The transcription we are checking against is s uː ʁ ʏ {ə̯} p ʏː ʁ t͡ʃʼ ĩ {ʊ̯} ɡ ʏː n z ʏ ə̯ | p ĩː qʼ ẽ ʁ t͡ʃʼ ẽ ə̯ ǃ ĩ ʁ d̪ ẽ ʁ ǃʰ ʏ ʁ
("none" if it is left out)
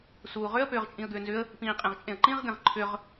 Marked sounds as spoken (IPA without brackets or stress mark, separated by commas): ə̯, ə̯